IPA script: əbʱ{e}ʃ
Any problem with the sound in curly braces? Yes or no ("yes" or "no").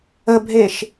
no